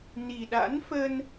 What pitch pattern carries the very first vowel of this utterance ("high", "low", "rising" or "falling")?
low